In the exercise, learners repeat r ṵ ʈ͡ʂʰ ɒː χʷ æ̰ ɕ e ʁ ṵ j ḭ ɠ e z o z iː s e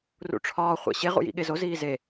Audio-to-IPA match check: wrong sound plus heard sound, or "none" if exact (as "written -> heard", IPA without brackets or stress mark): s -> z